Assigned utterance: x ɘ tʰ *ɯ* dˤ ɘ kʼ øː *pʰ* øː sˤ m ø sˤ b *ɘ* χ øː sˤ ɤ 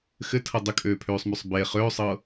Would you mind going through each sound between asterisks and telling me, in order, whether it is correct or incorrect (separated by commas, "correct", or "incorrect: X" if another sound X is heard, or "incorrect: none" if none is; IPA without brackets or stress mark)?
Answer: incorrect: ɤ, correct, incorrect: e